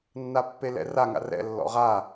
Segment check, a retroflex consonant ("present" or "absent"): absent